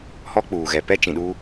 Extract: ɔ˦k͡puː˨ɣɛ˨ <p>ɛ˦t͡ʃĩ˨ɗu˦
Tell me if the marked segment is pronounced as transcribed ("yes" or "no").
yes